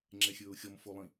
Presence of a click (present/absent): present